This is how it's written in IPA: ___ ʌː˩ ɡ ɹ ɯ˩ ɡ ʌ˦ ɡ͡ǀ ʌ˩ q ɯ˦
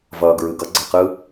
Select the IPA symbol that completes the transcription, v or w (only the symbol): v